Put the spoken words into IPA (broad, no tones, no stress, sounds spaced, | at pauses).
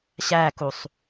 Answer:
ɕ æ k u sˤ